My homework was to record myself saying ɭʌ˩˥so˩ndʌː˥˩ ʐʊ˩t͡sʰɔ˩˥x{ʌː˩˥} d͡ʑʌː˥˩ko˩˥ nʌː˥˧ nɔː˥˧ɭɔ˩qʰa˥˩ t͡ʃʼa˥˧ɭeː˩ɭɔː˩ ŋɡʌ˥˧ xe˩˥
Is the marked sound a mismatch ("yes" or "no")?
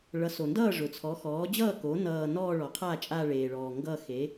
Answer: yes